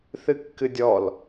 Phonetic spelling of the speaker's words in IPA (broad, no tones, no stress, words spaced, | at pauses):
θɨkːɨdʲɔl